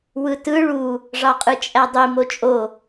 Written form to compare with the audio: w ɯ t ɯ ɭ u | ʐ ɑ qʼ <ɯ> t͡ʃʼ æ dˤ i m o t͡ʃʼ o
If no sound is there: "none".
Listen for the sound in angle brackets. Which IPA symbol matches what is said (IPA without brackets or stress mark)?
ɯ